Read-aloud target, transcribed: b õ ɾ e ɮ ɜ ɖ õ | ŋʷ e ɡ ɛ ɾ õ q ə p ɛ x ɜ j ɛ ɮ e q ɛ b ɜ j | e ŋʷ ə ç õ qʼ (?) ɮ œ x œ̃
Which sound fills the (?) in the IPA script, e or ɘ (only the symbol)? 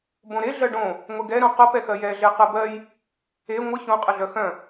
ɘ